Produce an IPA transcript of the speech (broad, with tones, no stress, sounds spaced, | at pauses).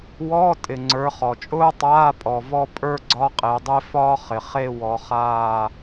w ɔː˧˥˧ tʼ ɪ˨ ŋ͡ǀ ə˞˨˦ χ ɔ˨ t͡ʃʼ ʊː˥ tˤ aː˧˥˧ pʼ ɔ˨ v ɔ˥˧ pʼ ə˞˥˧ ɡ͡ǀ ɒ˧˥˧ qʼ e˨˦ dˤ e˥ f ɒː˥ χ ɪ˨ χ e˥˧ w ɔ˨˦ χ aː˥˧